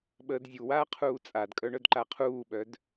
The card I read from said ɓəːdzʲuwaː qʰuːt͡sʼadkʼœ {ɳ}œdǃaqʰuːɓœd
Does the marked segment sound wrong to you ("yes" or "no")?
no